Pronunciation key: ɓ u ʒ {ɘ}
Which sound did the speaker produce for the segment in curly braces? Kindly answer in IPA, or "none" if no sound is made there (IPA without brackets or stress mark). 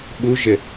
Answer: ɘ